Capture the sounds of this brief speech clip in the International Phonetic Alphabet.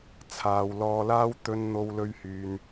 t͡sʰ aː˨ w l ɔː˧ l aː˥ w t̪ ɵ˧ n n̪ o˧ w l ɵ˧ ɥ h yː˨ n

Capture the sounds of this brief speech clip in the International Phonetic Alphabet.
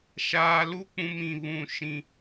ʃ aː˨ l u˦ k͡p ũ˦ m ĩ˦˨ β ũ˦˨ ʃ ĩ˦

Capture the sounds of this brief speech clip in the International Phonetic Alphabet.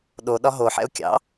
ɗ o ɗ ɒ ɦ o ħ ɛ̰ ʊ̯ kʲ ɑ̰

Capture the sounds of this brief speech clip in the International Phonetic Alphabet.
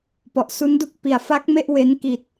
p ɔ˨˩ ʔ s u˦˥ n d u˥˩ k̚ p i˨˩ a̯ f a˦˥ k̚ m e˥˩ ʔ w e˦˥ n k i˨˩ t̚

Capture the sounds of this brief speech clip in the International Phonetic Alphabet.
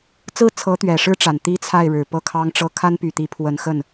t͡s ɹ̩˥˩ t͡sʰ ɤ˧˥ t̪ ɥ ɛ˨˩ ʂ ɻ̩˥ ʈ͡ʂ a˨˩ n t̪ i˥ t͡sʰ a˥˩ ɪ̯ ɻ ɻ̩˨˩ p ɤ˥˩ kʰ ɑ˥ ŋ ʈ͡ʂ ɤ˥ kʰ a˥ n p y˨˩ t̪ i˧˥ pʰ w ə˧˥ n x ə˥˩ n

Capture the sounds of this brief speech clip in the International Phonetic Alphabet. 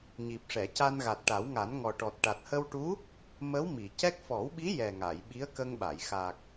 ɲ i˨˩ p̚ ʂ ɛ˨˩˨ c a˧ n ɣ a˨˩ t̚ ʈ a˨˩˦ w ŋ a˨˩˦ n ŋ ɔ˨˩ ʈ ɔ˨˩ t̚ ʈ a˨˩ t̚ h ə˧ w ʈ u˧˥ | m ə˧˥ w m i˨˩˨ c ɛ˦˥ k̚ f ɔ˨˩˦ w ɓ i˧˥ j ɛ˨˩ ŋ a˨˩˨ j ɓ i˧˥ ə̯ k ə˧ ŋ ɓ a˨˩˨ j x a˨˩ k̚

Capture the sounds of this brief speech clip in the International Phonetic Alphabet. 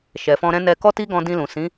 ʃ ɛ˨ f ɔ̃˧ ɾ ɛ̃˦ n ɛ˧ k ɔ˦ t i˦ ɡ ɔ̃˧ d ĩ˧ l ũ˨ s ĩ˨˦

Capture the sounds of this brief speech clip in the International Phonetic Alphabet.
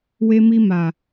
w e˧ m i˧ m a˨

